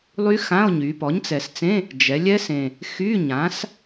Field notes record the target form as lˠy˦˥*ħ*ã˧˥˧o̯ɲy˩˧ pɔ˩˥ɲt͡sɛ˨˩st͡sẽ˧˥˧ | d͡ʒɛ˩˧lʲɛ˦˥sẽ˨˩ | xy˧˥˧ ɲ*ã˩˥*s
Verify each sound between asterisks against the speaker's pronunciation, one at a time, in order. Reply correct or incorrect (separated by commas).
incorrect, correct